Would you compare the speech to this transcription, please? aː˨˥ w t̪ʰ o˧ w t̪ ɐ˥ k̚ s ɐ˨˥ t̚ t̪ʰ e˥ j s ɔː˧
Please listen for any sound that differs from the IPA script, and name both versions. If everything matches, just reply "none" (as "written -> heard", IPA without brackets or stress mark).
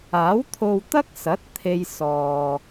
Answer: none